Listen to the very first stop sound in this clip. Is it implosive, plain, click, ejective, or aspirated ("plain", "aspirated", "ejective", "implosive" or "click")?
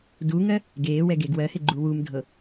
plain